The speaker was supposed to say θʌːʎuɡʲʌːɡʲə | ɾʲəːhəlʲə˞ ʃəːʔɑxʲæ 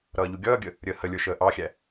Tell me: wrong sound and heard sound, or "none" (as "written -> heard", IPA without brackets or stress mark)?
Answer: θ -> ɾ